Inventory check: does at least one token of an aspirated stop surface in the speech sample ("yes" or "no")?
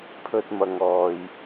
yes